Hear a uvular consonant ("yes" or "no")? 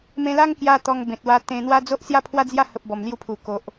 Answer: no